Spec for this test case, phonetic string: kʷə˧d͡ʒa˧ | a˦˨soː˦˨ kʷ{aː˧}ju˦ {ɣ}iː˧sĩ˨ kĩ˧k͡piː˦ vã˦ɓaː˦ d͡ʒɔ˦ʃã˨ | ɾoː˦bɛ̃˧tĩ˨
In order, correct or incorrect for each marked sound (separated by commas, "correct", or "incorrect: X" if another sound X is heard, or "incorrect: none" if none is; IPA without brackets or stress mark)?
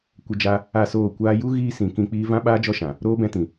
correct, correct